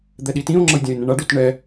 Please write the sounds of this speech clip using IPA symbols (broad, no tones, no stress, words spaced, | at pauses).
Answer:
d̪ɛɗitĩo̯ŋ͡ǁɤj dʲãe̯nɛ̃ɳaɖot ɳɛ